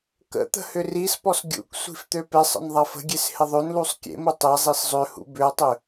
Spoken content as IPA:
k ə̰ t̪ ə̤ h ʏ r i s p ɔ s ɡʲ ṵ k sʷ i̤ f t̪ ø p e sˤ ə̰ n ðˤ ɐ f ə̤ ɡʲ e s h ɪ ðˤ ø n l u sˤ kʲ ḛ m u tˤ e zˤ i s zˤ ø h ṵ b ʏ ɐ̯ tˤ ʏ

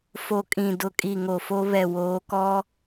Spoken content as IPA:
f o˨ kʼ ĩ˨ d ʊ˨ kʼ i˨ ŋ o˨ f o˦ β ɛ˨ w oː˨˦ k ɔ˦

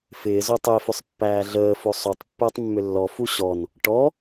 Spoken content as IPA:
f ɪː z o tˤ ʏ e̯ f ʏ sˤ pː æː ɮ əː f o sˤ o tˤ pː əː tˤ mː ʏ lː ɔ f u ɕ ɔ n | ʈ ɔ

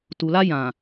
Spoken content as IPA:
t u˨ l a˦ j ã˨

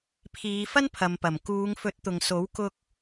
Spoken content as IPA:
pʰ iː˨˧ f ɐ˥ n pʰ ɐ˨ m p ɐ˨˩ m k uː˨˧ ŋ f ɵ˨˥ t̚ t̪ ʊ˨ ŋ s o˨˥ w k ʊ˧ k̚

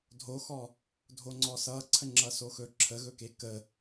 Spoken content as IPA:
dʱ o x ɔ | dʱ o ŋ͡ǀ ɔ s ʌ ǀʰ ə ŋ͡ǁ ʌ s o x ɵ ǁʰ ə ɣ ɵ k e k ə

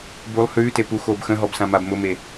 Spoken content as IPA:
b u lˠ h ʉː t e p u x oː b x ə̃ ɦ ɔ b s ã m a b m ʊ m e

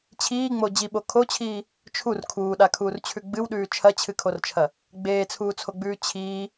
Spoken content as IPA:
t͡ɕʰ iː ŋ͡m o d͡ʑ i ɓ o kʰ o t͡ɕʰ iː | t͡ʃʰ u r kʰ uː ɗ a kʰ uː r t͡ɕʰ ʉ ɡ͡b ɨ w ɗ ʉː t͡ʃʰ ɐ t͡ɕʰ ɨ kʰ o r t͡ʃʰ ɐ | ɡ͡b eː t͡sʰ uː t͡sʰ o ɡ͡b ʉː t͡ɕʰ iː

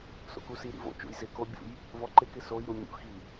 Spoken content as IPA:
s o̰ k u s i ɾ ḭ v o̰ t͡ʃ ṵ j z ɪ k o bʲ ṵ j | v ɔ ǃ ɪ k ɪ s o j ɾ u mʲ ṵ x i

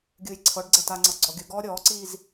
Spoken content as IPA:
ɡʲ ɯː j ǀʰ ɤ ɖ ɡ͡ǀ ɛ t a ŋ͡ǀ ɤ ɡ͡ǀ ɔ ɡʲ ɯ ɡ ɔː ɾʲ ɔː ǀ iː z

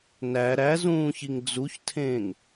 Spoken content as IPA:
n æ ɾ æ z ũː ç i ŋ d͡z u ç tʰ ẽː ŋ

